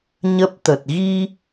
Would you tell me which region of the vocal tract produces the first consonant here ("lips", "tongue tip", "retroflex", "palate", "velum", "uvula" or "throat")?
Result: palate